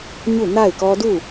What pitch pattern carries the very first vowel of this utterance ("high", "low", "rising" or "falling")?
falling